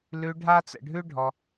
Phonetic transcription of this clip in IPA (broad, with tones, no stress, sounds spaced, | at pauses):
l ʉ˧ ɖʱ a˦ t͡s ə̰˧ ɖʱ ʉ˦ ɖʱ ɔ˧